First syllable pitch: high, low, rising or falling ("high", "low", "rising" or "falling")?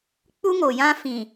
high